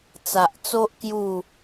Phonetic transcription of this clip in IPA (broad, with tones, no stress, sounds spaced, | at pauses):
t͡s a˨ ʔ t͡s o˦ ʔ k j u˥˧